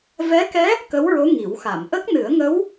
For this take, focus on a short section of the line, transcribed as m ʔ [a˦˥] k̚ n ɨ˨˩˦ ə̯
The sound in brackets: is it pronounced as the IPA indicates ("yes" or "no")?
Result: no